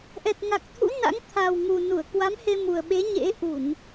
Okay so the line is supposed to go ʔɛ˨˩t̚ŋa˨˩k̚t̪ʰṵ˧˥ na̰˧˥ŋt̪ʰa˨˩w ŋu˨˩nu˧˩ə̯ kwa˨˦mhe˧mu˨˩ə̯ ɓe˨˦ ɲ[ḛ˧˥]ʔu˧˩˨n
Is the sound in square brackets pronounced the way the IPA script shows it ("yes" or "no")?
yes